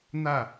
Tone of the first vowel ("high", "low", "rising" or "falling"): falling